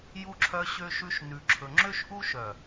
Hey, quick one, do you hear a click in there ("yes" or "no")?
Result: yes